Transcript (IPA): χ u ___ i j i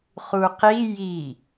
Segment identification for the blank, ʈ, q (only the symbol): q